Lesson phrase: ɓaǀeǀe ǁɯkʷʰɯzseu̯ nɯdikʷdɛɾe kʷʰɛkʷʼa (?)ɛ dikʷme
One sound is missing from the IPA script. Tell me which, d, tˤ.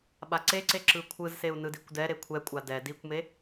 d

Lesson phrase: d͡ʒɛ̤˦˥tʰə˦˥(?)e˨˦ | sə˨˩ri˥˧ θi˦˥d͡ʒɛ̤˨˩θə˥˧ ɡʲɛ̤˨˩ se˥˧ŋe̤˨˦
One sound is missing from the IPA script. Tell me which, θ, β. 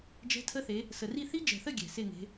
θ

